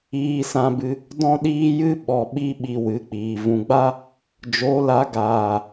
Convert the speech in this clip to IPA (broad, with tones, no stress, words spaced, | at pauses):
iː˧sã˧bɨ˧ | dɔ̃˦ɗiː˦jɨ˦ ɓɔ˨ɓi˧ ɓi˨ wɨ˨˦k͡piː˨ vũ˨ɡ͡ba˦ | d͡ʒo˨˦la˨˦ ɡaː˨